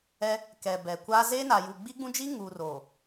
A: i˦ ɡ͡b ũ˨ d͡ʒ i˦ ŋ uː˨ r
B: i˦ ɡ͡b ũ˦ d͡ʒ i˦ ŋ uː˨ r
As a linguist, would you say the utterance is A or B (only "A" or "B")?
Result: B